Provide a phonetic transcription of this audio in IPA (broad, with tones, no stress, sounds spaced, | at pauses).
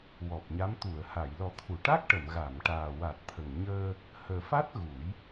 w ɔ˨˩ p̚ ɲ a˧˥ m t̪ u˨˩˨ ə̯ h a˨˩˨ j l ɔ˨˩˦ t̪ʰ u˨˩˨ ʈ a˦˥ k̚ ʈ ə˨˩˨ m ɣ a˨˩˨ m ʈ aː˨˩ w a˨˩ t̚ t̪ʰ ə˨˩ ŋ ɲ əː˧ | h əː˨˩ f a˦˥ t̚ ɣ u˨˩˦ j